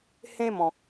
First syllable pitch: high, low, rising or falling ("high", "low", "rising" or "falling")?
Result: high